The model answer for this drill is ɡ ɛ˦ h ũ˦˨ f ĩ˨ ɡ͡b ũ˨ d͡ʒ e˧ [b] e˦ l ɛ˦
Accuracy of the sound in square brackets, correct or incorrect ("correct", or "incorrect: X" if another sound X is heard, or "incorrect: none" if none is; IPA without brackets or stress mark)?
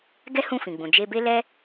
correct